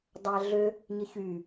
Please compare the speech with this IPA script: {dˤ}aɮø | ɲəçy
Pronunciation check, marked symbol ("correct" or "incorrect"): correct